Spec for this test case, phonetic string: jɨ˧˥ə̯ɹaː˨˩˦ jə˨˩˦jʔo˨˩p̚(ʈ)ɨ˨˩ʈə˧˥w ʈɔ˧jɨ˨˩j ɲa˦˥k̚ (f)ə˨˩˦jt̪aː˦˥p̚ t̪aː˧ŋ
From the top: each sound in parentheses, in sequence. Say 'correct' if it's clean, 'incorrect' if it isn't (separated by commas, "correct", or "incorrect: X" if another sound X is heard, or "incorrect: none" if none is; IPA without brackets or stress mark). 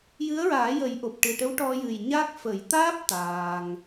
correct, correct